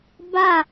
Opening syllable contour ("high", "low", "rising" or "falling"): falling